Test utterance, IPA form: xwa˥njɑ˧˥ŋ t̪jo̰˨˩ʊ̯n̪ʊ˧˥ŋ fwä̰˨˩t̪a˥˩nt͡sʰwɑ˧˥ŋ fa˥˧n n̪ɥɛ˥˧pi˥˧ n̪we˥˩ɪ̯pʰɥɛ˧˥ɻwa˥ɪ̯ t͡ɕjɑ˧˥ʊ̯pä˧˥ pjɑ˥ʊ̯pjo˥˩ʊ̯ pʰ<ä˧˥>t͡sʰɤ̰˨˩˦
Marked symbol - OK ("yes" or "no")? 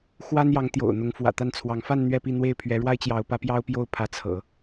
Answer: yes